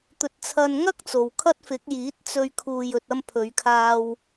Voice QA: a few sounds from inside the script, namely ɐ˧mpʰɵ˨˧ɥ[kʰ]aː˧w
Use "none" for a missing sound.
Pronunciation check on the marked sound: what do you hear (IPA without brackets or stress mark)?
kʰ